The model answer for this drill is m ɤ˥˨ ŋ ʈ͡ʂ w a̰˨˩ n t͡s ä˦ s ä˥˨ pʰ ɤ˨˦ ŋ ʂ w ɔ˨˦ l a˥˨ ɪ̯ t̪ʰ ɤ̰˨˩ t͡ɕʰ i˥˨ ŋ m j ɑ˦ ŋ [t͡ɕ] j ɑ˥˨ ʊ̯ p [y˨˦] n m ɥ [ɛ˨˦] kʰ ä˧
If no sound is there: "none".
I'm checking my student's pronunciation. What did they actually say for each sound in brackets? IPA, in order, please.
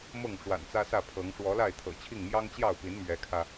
t͡ɕ, i˨˦, ɛ˨˦

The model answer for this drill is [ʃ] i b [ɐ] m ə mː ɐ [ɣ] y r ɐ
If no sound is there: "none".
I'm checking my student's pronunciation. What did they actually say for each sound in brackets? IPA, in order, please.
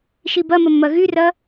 ʃ, ɐ, ɣ

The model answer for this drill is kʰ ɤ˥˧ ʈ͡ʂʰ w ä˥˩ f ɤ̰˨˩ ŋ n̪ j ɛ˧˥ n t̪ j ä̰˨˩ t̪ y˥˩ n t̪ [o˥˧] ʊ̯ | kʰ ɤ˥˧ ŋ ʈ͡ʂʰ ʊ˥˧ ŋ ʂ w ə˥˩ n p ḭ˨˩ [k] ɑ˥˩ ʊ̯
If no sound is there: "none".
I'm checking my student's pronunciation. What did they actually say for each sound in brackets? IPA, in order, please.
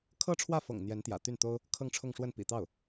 o˥, t̪

